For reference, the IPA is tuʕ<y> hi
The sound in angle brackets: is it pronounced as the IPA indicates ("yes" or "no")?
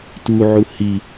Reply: no